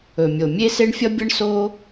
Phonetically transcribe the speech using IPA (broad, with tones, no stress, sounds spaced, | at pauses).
ɵ˩ mʲ o˩ mʲ e˥ s e˥ ɳ fʲ ʌ˥ bʲ ʌ˥ ɳ s o˥